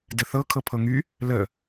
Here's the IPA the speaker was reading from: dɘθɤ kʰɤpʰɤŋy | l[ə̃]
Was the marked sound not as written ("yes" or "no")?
yes